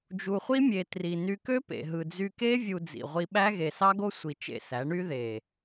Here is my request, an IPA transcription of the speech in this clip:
d͡ʒ u˨ χʷ i˦ mʲ e˨ t r i˨ n y˧ k ø˦ p ḛ˨ ɦ ɯ˨ d͡z y˧ k e˦ vʲ u˧ d͡z ḭ˨ ʁʷ i˧ ɓ æ˦ ɣ e˨ s ɑ˦ ɡ o˦ sʷ i˧ t͡ʃ ḛ˦˨ s æ˨˦ ɳ y˦ ð e˨

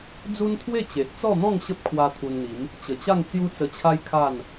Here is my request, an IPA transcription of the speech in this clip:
d͡z u˦ n t̪ʰ w e˥˧ t͡ɕ e˨ ʔ t͡s ɔ˥˧ n̪ ɔ̃˥˧ ŋ ɕ ə˦ p̚ kʰ w a˧ t̪ʰ u˧ n n̪ i˨˦ m | t͡ɕ ə˨˩ t͡ɕ a˥˧ ŋ t͡s j u˦ t͡s ə˧ t͡ɕʰ a˦ j kʰ a˥˧ n

